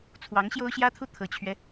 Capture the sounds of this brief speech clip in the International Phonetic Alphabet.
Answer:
t͡sʰwɑ˧˥ŋ ɕjo˥ʊ̯ɕjä˥t̪ʰu˥˩ t̪ʰɤ˨˩t͡ɕʰɥɛ˦

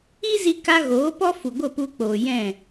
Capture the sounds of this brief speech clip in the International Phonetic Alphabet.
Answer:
i˦zi˧ka˧ ɣoː˨˦pɔ˦fu˨ ɡʷə˦˨pu˧k͡poː˨jɛ̃˦˨

